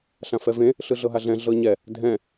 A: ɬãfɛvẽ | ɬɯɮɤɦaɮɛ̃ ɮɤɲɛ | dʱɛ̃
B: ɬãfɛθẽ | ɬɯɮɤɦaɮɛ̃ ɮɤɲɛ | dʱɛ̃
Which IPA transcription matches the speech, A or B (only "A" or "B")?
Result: A